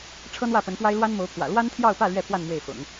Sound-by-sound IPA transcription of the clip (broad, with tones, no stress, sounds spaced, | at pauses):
ʈ͡ʂʰ ɤ˥ n̪ w ä˥˩ p ə˧˥ n p w a˥ ɪ̯ l w a˥ n m o˧˥ ʊ̯ pʰ w ä̰˨˩ l w a˥ n t̪ʰ j ɑ˥˧ ʊ̯ p ä˥˧ l ɥ ɛ˥˧ pʰ w a˥˧ n m w e˥˩ ɪ̯ f ʊ̰˨˩˦ ŋ